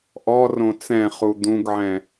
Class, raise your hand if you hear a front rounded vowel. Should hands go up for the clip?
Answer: no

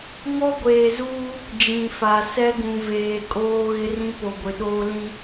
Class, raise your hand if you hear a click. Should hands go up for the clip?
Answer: no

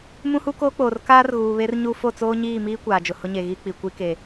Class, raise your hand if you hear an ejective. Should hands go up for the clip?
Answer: no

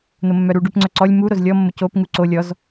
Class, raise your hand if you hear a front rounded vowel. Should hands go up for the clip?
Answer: yes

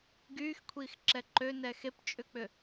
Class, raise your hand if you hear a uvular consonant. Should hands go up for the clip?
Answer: no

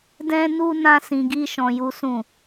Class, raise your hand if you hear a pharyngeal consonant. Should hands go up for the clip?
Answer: no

